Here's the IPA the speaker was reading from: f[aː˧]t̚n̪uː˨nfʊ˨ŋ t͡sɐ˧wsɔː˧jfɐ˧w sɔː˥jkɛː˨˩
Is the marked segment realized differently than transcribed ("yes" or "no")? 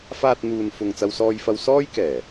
no